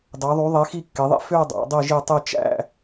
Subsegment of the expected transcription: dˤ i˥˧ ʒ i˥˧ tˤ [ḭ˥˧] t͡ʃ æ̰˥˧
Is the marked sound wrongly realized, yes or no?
yes